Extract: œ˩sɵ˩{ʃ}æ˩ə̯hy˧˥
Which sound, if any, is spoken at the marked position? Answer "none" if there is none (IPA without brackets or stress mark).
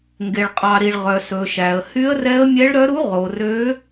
ʃ